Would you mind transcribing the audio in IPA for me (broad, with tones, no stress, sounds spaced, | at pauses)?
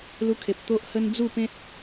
l u˦ kʰ e˨ p̚ t̪ o˦ ʔ h ə˦ n d͡z u˥˧ p ẽ˦ t̚